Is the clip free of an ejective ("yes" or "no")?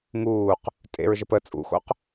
no